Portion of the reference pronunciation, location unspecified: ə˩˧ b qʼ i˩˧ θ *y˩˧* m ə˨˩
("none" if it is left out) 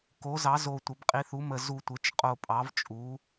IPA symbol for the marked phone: u˩˧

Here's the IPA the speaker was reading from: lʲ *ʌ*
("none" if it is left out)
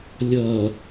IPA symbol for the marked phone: ʌ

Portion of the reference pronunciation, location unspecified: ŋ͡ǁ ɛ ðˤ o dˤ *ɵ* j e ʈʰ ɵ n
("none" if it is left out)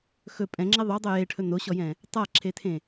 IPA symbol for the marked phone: ɵ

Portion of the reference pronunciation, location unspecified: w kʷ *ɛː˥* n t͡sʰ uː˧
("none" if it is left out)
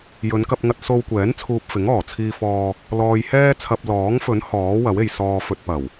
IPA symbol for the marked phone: ɛː˨˥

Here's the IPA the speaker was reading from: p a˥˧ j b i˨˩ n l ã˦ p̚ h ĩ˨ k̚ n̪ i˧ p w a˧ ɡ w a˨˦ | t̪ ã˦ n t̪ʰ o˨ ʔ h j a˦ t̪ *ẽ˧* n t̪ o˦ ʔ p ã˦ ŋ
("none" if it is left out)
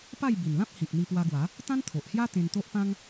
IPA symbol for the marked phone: ẽ˧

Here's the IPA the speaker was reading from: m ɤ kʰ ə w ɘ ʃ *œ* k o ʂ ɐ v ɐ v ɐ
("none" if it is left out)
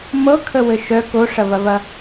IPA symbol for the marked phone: œ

